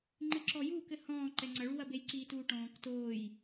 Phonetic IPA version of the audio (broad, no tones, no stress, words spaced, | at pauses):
ŋ͡ǃɨǁɔjuːkɘ hɔ̃ːǃɛ ŋ͡ǀɐɭuwɐ bejǀiːtuːʈɔ̃ːk toːj